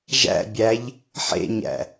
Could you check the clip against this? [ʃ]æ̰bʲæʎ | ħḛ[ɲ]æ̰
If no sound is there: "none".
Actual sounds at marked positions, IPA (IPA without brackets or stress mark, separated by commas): ʒ, ɲ